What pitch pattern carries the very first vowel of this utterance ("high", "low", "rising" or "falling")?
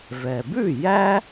low